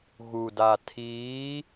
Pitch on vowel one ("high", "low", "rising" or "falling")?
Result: low